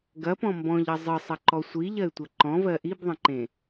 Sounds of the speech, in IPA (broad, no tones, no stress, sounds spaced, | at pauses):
ɡ ɐ p ɔ̃ m b ɔ̃ ʎ ɐ zˤ ɨ sˤ ɐ ǃ ɔ sʷ i ʎ ɐ ɪ̯ tʷ ɐ ǃ ɔ̃ v ɜ ʔ i b ðˤ ɐ̃ ǃ ẽ